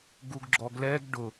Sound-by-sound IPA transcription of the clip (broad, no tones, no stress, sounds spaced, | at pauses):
ɡ u ɡ ɡ͡ǁ ɔ ɡ l ɛ ɡ ɖ ʊ